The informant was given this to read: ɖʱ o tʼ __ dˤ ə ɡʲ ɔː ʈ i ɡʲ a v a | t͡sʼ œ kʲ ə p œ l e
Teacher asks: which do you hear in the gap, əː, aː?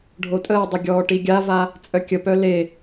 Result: əː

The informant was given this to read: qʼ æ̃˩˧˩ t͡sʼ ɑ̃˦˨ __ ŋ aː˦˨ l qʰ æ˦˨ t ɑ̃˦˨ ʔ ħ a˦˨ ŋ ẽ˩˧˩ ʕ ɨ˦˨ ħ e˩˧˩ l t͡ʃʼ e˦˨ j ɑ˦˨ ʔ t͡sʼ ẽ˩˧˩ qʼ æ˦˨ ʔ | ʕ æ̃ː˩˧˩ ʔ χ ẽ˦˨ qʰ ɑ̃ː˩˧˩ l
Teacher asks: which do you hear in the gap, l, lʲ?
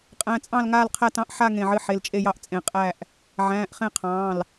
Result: l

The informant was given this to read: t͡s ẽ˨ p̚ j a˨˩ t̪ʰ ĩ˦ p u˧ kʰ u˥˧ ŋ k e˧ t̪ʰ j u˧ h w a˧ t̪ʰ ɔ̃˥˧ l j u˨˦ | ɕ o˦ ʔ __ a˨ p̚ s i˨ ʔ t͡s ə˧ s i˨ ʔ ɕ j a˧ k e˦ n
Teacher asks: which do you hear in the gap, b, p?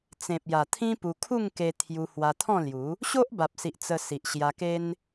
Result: b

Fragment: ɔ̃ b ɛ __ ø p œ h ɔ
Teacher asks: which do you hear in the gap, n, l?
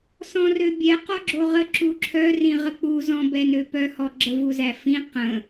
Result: n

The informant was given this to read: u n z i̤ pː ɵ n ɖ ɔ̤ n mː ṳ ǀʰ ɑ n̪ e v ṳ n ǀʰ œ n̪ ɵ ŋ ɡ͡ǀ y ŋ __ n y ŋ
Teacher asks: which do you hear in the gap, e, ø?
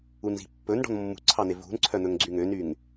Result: ø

